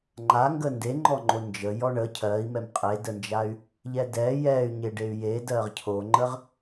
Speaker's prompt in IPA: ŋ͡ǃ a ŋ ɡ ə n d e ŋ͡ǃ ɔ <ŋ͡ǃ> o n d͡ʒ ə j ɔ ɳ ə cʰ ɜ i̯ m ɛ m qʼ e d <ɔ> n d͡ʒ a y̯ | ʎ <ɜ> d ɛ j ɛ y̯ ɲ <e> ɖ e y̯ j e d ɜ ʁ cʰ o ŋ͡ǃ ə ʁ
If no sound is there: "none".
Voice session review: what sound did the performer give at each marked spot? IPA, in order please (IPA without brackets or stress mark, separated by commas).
ŋ͡ǃ, ə, ɛ, e